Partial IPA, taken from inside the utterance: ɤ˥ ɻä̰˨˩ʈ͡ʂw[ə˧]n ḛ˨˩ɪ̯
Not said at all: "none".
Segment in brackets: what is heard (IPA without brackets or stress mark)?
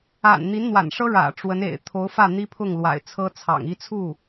ə˧˥